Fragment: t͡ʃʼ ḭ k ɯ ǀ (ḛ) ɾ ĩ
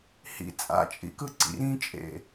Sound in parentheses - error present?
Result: yes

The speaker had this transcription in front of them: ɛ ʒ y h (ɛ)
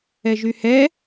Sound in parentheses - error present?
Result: no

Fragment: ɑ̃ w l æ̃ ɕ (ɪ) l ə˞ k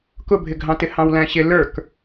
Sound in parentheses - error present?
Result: no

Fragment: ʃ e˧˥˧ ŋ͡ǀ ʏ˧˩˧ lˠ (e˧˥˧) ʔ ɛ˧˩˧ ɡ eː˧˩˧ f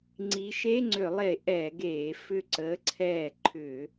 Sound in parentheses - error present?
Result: yes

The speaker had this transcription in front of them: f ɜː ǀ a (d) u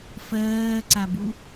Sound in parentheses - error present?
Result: yes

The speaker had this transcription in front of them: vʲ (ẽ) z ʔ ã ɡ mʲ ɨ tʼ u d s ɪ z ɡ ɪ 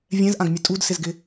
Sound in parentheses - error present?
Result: yes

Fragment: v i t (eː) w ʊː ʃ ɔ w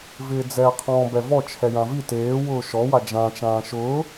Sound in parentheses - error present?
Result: no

